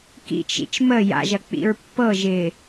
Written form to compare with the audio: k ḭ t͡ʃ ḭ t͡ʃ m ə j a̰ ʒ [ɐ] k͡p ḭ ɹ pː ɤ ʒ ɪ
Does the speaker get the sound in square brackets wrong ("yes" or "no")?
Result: no